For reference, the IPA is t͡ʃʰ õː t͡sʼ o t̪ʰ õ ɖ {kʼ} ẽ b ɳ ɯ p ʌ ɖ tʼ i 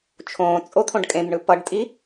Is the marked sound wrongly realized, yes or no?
no